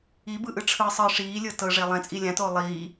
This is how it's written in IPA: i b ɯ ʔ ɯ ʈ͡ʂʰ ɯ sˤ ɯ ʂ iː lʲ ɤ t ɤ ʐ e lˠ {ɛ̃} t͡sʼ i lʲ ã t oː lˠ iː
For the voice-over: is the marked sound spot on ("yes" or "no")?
yes